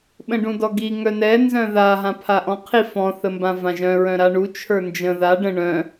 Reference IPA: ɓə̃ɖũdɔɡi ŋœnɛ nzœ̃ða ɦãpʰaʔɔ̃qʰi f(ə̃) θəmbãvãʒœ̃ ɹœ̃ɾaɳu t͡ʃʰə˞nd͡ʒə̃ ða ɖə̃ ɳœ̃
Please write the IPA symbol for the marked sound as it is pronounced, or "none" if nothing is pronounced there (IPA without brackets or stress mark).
ɔ̃